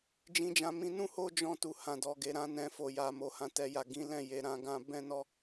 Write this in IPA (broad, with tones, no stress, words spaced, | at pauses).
d͡ʒĩ˧d͡ʒã˧mĩ˧ nũ˦ho˦d͡ʒɔ̃˧tu˨ hã˨dɔ˨ɡe˨ ɾã˨˦nɛ̃˧ fo˨ja˨mo˨ hã˨tɛ˨ja˨ ɡĩ˨˦lɛ̃˦˨ je˨ɾã˧ ɡã˦ bɛ̃˦nɔ˦